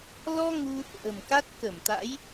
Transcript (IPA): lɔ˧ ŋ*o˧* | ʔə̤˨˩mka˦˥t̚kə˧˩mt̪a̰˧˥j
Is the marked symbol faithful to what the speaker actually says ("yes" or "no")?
no